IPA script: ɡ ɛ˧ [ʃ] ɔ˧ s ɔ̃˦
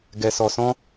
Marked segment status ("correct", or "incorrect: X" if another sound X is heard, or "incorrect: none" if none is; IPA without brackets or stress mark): incorrect: s